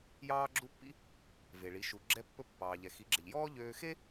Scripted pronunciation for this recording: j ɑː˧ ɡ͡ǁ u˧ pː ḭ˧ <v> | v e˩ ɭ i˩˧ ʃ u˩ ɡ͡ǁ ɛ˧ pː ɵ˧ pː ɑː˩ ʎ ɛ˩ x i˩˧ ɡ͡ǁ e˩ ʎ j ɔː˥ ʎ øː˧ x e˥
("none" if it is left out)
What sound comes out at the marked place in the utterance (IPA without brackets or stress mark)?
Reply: none